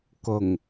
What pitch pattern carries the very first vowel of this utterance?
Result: low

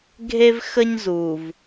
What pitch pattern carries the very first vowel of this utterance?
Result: high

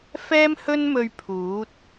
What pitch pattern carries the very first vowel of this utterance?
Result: high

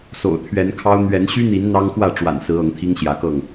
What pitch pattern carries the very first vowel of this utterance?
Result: low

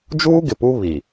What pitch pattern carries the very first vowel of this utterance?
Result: high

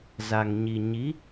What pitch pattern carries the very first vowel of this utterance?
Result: low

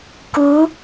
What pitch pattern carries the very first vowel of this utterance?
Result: rising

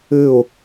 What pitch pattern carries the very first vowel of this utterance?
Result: falling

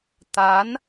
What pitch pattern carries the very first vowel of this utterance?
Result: rising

